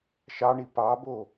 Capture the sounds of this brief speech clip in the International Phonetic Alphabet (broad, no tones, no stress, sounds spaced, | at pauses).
ʃ ɑ ɳ i p ɑ b o